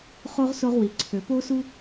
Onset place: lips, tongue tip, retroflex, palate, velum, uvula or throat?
uvula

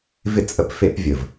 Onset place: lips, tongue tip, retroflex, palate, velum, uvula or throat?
lips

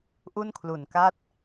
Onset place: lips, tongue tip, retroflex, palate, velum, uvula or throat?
throat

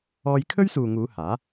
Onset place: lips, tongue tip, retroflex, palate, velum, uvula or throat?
palate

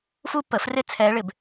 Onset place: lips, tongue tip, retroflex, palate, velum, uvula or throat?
lips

